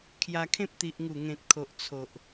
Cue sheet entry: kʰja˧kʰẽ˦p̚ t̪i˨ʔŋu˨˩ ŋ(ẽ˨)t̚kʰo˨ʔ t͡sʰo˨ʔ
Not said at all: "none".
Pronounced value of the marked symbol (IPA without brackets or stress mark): ẽ˨